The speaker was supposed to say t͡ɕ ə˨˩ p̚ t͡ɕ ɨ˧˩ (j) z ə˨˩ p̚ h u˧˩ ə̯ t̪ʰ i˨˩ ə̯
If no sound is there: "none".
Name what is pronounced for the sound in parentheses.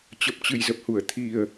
j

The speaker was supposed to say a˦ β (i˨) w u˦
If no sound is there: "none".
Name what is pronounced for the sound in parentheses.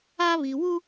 i˨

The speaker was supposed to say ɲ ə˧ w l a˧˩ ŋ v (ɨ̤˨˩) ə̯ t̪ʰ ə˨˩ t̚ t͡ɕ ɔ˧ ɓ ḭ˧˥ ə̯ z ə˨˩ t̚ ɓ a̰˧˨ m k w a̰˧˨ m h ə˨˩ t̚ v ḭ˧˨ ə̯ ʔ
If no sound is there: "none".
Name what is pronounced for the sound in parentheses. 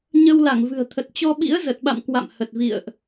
ɨ̤˨˩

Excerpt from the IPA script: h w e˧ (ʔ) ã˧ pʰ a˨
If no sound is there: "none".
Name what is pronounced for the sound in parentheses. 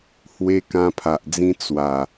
k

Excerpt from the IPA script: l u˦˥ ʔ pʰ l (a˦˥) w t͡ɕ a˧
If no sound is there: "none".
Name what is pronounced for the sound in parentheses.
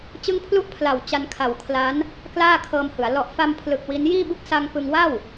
a˨˩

